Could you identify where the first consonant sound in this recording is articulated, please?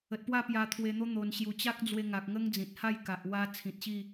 alveolar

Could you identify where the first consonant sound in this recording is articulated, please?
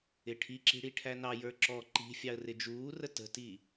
retroflex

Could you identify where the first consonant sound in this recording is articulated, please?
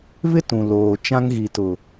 labial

